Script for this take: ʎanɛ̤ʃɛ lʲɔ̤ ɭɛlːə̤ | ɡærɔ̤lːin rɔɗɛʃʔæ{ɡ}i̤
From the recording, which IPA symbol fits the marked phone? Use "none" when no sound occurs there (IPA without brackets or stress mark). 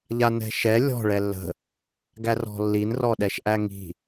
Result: ŋ